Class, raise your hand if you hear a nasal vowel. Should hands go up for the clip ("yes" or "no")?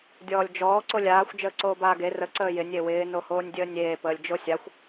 no